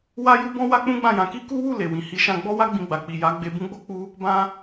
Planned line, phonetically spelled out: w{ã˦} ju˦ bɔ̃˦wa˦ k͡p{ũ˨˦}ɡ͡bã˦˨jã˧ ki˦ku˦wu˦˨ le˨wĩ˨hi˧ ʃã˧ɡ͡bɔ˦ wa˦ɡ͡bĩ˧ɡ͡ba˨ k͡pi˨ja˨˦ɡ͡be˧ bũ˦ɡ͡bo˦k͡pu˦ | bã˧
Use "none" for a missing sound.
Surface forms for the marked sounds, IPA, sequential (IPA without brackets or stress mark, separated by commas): a˦, ũ˦